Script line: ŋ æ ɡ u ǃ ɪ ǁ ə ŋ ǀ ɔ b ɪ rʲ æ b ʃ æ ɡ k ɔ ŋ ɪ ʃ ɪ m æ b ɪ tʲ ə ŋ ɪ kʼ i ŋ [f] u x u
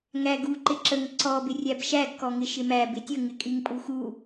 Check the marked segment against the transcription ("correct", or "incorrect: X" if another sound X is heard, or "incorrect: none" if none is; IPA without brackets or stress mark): incorrect: pʼ